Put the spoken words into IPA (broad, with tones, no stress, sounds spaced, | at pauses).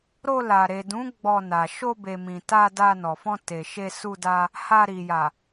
ɾ o˧ l a˨ ɾ e˨ d ũ˨˦ ɡ͡b ɔ˧ n a˨ ʃ o˧ b e˨ m ĩ˨ t a˧ d a˧ n ɔ˨ f ɔ̃˧ t e˨ ʃ e˧ s u˧ d a˧ | h a˧ ɾ i˨ j a˨